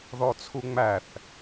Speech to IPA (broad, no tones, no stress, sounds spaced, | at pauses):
ð ɔ t͡sʰ u ŋ͡m æ θ